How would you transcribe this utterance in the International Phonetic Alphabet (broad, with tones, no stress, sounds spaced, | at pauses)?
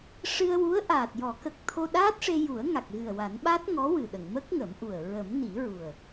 ʂ ɨ˧ ə̯ w u˧˥ ə̯ ʔ aː˨˩ t̚ j ɔ˨˩˦ k ə˨˩ k̚ t̪ʰ o˧ ɗ aː˦˥ t̚ ʂ e˧ j u˨˩˦ ə̯ ŋ a˨˩ k̚ ɣ ɨ˨˩ ə̯ w a˨˩˦ n ɓ a˦˥ t̚ ŋ ɔ˧˥ w ɨ˨˩ ɗ ə˨˩˨ ŋ m ə˦˥ k̚ ŋ ə˨˩˦ m ʔ u˨˩ ə̯ ɹ ə˨˩˦ m n i˨˩˦ ɹ u˨˩ ə̯